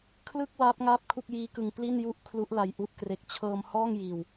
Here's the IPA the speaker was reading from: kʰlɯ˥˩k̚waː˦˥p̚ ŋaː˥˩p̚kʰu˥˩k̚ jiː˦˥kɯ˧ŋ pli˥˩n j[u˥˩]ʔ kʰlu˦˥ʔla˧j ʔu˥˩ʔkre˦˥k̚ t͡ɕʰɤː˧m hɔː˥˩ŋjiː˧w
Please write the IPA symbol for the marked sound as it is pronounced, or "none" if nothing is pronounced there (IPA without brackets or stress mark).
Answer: u˥˩